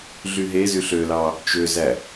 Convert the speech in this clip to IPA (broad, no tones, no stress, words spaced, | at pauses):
ɮyɦezyɬ ølɑ | t͡ʃøzæ